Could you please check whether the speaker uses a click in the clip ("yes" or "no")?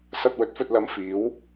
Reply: no